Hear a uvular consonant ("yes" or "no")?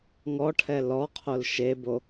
yes